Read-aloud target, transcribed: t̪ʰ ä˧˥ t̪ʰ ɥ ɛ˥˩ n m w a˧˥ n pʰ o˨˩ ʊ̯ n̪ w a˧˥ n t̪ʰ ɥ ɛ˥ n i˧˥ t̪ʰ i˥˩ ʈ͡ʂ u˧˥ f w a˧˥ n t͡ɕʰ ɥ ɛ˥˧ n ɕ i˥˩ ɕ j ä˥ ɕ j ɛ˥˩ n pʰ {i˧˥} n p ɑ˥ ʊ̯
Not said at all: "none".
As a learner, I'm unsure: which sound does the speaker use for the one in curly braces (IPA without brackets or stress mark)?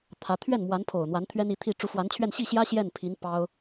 i˧˥